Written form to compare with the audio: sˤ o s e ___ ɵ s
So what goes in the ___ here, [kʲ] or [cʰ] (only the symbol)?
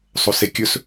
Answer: kʲ